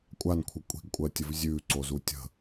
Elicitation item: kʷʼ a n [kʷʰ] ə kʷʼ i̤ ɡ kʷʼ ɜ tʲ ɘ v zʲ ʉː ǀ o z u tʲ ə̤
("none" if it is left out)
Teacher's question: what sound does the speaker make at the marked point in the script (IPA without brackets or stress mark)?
kʷʰ